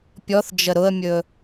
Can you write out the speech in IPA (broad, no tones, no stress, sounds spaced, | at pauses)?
pʲ ɔ θ d͡ʒ ə ɾ ʊ ə̯ mʲ ɵ